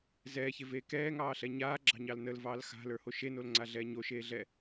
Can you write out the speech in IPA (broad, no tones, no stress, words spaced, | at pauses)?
zɛːçeveː kɛːŋɑːɬɛ ɲaːɡ͡ǁɑ̤ɲɑl nəlvɑːl xa̤lə˞ho ʃenolŋ͡ǀaɮɛː ɲoʃeːɮɛ